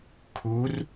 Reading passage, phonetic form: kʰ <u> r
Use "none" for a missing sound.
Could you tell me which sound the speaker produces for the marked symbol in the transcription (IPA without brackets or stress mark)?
u